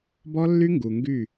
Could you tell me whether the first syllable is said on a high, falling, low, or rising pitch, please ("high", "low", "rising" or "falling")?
high